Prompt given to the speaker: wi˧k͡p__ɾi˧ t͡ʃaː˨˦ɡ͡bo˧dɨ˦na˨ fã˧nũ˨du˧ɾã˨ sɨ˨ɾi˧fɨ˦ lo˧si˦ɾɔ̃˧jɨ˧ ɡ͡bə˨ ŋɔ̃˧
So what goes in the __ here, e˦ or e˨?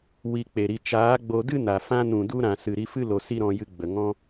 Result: e˨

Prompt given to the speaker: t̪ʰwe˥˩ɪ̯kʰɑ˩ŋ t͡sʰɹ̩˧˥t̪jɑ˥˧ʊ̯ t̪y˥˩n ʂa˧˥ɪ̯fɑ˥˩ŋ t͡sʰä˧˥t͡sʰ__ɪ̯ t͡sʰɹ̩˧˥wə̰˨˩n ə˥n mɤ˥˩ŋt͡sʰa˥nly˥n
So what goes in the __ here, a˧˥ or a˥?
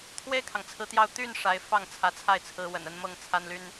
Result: a˥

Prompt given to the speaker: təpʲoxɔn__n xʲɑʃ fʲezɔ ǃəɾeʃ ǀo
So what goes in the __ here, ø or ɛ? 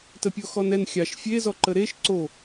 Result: ɛ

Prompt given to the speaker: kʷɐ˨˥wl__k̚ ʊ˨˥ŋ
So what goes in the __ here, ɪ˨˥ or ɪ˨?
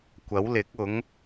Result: ɪ˨˥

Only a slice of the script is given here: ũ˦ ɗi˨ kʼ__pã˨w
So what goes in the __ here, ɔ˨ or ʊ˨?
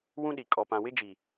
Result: ɔ˨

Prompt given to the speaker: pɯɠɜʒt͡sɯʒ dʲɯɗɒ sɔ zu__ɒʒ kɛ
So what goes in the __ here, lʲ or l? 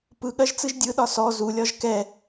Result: lʲ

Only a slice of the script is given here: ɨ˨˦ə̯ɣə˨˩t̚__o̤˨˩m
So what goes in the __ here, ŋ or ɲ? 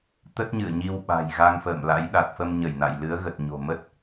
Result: ɲ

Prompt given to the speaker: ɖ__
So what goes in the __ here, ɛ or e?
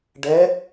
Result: ɛ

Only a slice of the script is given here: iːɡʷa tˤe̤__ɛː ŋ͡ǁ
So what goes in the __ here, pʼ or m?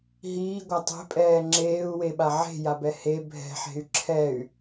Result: pʼ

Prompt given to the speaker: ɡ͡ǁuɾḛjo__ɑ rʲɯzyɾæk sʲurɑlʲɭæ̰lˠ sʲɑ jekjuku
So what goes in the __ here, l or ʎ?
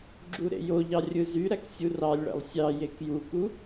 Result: ʎ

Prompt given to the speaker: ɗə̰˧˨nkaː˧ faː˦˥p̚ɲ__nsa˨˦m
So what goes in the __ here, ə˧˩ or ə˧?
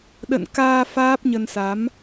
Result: ə˧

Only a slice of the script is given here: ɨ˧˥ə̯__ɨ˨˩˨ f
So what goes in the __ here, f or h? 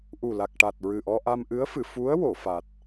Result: f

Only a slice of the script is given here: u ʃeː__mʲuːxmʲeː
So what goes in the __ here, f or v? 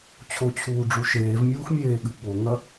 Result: v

